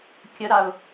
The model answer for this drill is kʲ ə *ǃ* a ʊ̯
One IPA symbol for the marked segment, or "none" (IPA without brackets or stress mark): ɾ